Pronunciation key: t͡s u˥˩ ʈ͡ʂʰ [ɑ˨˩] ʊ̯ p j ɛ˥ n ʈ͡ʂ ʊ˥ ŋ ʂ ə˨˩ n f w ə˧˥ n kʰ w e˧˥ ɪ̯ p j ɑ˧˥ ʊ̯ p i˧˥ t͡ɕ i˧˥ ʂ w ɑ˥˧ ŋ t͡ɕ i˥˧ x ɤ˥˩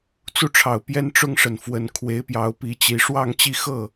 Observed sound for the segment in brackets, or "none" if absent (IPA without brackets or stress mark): ɑ˨˩